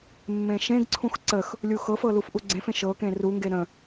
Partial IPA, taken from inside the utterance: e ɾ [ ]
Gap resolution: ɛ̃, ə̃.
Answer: ə̃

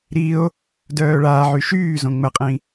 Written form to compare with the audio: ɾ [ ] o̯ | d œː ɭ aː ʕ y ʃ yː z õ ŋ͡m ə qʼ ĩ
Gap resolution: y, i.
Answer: i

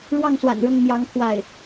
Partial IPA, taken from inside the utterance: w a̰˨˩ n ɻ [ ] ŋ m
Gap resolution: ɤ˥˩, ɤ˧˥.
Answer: ɤ˥˩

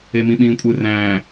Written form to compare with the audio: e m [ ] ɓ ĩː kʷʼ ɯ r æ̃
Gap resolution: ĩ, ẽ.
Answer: ĩ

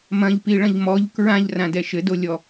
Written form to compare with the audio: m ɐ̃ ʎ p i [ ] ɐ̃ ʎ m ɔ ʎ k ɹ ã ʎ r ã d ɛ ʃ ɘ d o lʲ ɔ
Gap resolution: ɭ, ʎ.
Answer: ɭ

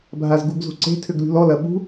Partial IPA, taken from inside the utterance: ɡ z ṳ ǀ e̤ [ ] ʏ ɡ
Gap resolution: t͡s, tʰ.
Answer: tʰ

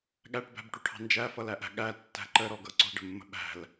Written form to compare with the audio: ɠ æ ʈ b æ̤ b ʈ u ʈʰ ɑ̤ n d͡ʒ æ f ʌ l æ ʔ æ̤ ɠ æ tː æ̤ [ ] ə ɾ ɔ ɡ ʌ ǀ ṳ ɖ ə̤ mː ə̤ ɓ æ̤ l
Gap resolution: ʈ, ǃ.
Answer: ǃ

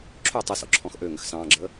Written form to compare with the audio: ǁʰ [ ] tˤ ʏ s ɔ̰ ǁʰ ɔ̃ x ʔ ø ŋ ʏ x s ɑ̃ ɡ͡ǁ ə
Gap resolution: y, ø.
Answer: ø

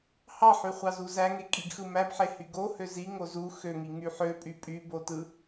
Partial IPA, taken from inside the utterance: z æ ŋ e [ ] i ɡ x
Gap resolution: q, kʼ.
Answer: kʼ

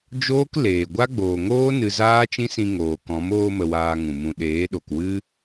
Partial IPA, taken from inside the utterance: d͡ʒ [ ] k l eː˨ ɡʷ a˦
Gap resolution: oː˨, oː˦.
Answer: oː˦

